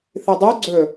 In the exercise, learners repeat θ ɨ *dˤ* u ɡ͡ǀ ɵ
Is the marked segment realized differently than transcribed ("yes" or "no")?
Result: no